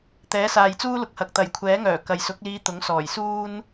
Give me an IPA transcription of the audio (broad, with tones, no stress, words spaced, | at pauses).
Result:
t̪ɛː˨˥saː˨j t͡suː˥lʊ˨k̚hɐ˨k̚ t̪ɐ˨˩jkʷʰɛː˨˥ŋœː˨˩ kɐ˨jsʊ˨˥k̚liː˧ t̪ʊ˨˥ŋsɔː˨˩jsuː˥n